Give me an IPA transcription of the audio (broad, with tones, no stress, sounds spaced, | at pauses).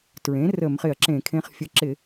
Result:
t ɹ ẽ˩˥ r ə˧˩˧ m χ ɪ˧˩˧ ɐ̯ ǁ ẽ˧˩˧ kʰ ẽ˧ χ fʲ ə˧ ǁ ɪ˧˩˧